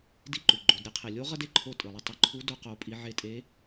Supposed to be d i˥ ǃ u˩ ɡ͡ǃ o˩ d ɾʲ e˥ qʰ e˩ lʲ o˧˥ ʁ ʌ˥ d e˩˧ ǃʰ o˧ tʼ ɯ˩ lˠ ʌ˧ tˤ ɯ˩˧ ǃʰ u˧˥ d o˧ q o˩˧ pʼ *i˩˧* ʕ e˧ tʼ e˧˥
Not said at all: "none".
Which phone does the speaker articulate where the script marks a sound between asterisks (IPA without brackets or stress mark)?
i˩˧